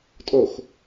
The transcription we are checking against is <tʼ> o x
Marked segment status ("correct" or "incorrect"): correct